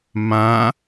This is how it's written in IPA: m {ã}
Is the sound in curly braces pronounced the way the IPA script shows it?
yes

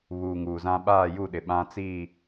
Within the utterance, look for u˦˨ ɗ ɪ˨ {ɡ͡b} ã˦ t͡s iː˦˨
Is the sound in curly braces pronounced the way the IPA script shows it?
no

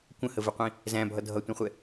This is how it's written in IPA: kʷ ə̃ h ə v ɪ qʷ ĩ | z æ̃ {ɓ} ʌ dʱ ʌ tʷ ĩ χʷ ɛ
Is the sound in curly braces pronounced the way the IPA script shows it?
no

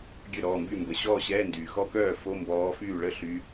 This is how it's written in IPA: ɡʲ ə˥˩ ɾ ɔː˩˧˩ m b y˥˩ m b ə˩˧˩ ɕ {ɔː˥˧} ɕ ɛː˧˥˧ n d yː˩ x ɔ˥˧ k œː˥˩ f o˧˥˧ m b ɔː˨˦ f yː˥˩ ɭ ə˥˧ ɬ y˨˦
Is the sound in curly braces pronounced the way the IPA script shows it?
yes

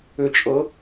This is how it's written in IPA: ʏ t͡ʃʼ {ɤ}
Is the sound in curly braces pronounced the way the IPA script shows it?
yes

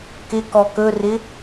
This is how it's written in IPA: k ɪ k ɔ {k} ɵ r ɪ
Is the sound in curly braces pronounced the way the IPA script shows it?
yes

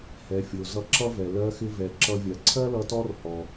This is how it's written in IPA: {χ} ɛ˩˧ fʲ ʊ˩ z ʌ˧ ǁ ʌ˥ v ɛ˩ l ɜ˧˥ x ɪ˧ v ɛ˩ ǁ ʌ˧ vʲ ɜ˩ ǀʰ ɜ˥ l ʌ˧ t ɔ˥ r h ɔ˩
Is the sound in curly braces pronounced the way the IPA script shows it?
no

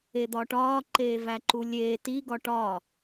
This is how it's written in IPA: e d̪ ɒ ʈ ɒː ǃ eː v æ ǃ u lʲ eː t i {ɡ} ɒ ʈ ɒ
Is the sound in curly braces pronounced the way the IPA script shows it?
yes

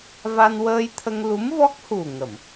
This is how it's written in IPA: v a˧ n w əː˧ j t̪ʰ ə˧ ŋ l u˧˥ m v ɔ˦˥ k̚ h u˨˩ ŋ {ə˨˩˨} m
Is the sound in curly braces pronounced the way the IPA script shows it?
yes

